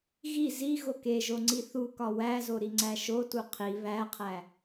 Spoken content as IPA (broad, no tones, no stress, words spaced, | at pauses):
ɣi zi ɣokeʒoŋ͡ǀi θukɒ wæzo ɾiŋ͡ǀæʃotu qʰi βæqʰæ